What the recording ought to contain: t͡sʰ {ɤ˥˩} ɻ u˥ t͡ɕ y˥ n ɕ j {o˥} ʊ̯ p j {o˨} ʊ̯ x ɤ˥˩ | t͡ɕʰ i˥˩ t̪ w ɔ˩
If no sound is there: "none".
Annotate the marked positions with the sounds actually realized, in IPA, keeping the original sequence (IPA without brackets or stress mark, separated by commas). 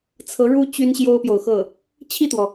ɤ˧˥, o˥, o˨